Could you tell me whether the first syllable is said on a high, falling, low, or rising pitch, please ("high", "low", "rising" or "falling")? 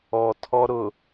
low